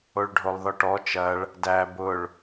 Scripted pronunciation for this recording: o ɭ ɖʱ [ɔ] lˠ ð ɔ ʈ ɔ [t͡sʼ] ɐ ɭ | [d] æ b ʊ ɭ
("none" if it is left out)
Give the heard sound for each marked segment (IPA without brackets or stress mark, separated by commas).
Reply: o, t͡ʃ, d